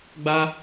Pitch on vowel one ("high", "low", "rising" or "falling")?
high